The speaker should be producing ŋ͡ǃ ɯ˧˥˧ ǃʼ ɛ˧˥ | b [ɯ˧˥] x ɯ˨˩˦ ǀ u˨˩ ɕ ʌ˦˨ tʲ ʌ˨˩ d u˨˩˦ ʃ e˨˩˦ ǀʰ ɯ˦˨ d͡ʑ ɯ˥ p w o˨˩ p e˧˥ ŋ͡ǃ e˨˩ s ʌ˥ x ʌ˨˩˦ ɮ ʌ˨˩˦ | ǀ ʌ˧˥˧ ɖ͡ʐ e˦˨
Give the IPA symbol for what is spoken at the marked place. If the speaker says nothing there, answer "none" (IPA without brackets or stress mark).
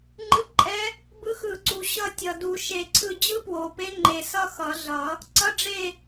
ɯ˧˥